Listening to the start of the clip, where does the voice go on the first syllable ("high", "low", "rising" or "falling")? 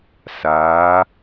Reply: rising